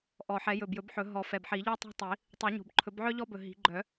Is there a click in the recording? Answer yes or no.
yes